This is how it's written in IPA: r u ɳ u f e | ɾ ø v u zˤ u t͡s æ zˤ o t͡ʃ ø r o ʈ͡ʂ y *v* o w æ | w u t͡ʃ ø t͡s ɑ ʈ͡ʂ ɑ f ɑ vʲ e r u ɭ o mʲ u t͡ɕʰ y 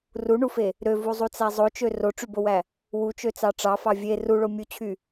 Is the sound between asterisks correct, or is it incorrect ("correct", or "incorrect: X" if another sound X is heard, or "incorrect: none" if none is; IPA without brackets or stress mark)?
incorrect: b